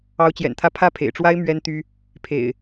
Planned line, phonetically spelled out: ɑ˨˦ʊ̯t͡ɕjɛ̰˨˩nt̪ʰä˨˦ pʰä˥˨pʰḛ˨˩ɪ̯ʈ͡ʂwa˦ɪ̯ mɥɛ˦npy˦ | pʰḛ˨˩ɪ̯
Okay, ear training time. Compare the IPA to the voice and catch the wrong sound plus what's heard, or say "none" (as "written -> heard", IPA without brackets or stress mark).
p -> t̪